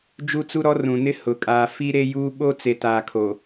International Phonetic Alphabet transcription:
d͡ʒu˦t͡su˦ɾɔ˦ rũ˨nɪ˦ hʊ˨ kʼaː˨ fi˦ɾe˦juː˦ ɓo˦t͡se˨taː˨kʰo˨

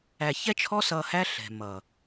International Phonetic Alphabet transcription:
æ˨çɛ˦t͡ʃʰɔ˦ sʌ˧hæ˦ ɬɛ̤˨mʌ˨

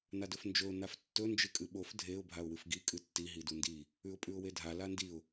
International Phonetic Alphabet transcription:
nadɵfnd͡ʒɵʊ̯ naftːɵ nd͡ʒɨkʼɨɓof dʱeʊ̯ bʱaʊ̯wɨfɡi kʼɨtːi ɦidundi | ʉʊ̯pʼʉʊ̯wedʱa landiʊ̯

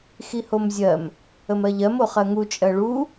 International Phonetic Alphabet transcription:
xihomzʲɜm | əmɜʎɜm oχɜŋu t͡ʃʼɜɭu

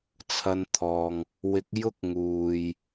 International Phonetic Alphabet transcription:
t͡sʰɐ˧nt̪ʰɔː˨ŋ | wɪ˨˥k̚jʊ˥k̚ ŋuː˨j

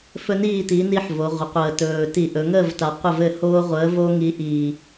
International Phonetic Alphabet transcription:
fɵ˦niː˥˨ti˨˥ ni˦ħvo˩˧ʁʷə˩˧ qʷəː˨˩tɵː˨˩ ti˧˩˧ʔɵ˩˧ŋəː˥˨vta˨˩ qʷə˥˨vɘ˥˨ hoː˦ʁʷəː˨˥vo˦ ŋi˨˥ʔiː˨˩

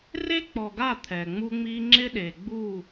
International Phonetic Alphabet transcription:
re˦k͡pɔ˨ɡa˦˨ t̪ʰɛ˨ŋ͡mu˦ŋ͡mi˦ ŋ͡ǁɪ˦ɗe˨ ɡ͡bu˦˨

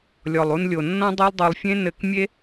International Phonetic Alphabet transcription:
lʲɔ˧lˠu˦nlʲo˧ nːɔ̃˦dˤe˦lˠdˤo˧lˠfʲẽ˦ nɘ˦k mʲe˦

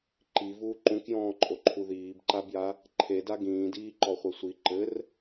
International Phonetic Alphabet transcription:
ǃivuː ǃũkjɔ̃ːǃʼoǃʰu ðiːbǃabja | ǃʰeda ɡĩːdiːǃɔχʷe sʷi ǃɘr

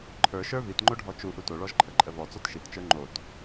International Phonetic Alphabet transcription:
ǃʰə˞ʃə˞ vitŋ͡ǃoɖʱɔ t͡ʃu ʔutoɭɔʒǃʰə ǃʼəvɔ t͡sɔtʃitt͡ʃə˞ ŋ͡ǃot

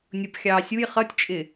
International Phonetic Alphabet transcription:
nʲʊpxʲɑː sʲuj χʌtʲt͡ʃʼɪ

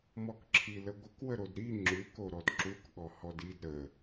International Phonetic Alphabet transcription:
mɔkǁʰiləɡʷək wəɾodɾi ŋ͡ǁʉk oɾɔdǁuk ɠɔhɔdid ɾə

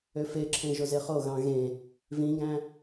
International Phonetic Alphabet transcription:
øfeǁʰẽ ʒozeχoɣɑ̃ ɣẽ | vĩɡæ̃

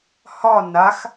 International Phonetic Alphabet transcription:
hɒ nax

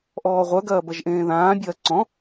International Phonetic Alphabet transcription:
ʔɔːʁʷœɡ ɐːbɐʒʔẽːðãː bʲɐːǀɔ̃

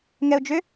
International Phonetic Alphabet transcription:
ŋɛʊ̯d͡ʒʏ

